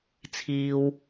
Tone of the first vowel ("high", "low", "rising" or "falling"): low